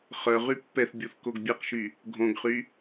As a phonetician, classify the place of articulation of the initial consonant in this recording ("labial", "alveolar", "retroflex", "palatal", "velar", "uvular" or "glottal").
uvular